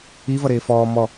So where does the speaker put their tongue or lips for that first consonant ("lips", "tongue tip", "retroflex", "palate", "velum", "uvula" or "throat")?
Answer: lips